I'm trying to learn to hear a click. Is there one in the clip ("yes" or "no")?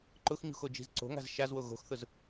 yes